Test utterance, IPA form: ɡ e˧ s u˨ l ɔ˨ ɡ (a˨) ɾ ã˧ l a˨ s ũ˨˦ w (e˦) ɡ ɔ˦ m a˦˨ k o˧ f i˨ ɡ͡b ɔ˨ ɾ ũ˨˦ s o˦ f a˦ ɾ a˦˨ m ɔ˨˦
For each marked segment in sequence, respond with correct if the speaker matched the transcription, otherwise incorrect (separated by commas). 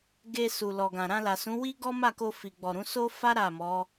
incorrect, incorrect